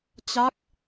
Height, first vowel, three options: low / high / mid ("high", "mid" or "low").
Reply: low